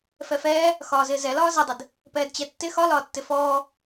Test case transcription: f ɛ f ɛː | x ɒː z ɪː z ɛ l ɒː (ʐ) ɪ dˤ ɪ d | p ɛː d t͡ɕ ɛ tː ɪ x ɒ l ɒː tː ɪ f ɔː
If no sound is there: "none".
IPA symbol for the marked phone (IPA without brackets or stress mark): z